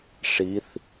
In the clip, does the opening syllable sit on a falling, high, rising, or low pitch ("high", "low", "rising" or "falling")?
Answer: rising